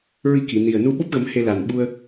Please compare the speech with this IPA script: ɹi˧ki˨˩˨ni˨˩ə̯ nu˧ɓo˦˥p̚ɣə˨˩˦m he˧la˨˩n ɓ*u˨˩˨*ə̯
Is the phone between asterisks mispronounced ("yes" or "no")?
yes